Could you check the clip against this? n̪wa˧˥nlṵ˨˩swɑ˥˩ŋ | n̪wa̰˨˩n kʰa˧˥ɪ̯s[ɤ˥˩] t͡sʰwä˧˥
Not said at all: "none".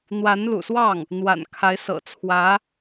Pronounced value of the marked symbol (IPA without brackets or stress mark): ɤ̰˨˩